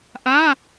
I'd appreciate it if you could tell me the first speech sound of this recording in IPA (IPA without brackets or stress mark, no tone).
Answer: ʔ